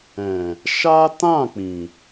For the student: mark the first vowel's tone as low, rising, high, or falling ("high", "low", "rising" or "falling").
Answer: low